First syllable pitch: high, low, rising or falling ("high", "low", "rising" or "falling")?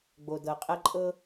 low